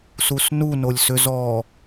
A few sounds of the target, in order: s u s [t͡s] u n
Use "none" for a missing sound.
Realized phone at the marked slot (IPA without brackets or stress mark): n